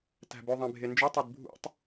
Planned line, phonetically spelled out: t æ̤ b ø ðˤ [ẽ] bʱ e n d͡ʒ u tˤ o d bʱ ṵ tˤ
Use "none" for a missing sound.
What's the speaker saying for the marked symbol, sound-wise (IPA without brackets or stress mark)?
ẽ